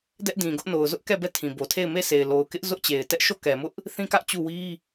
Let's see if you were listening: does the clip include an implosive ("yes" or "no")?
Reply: no